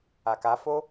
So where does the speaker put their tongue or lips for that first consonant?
velum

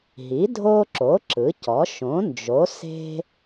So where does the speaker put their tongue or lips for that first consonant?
throat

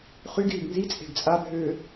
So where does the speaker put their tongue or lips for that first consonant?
uvula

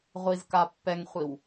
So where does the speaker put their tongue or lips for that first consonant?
uvula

